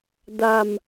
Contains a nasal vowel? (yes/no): no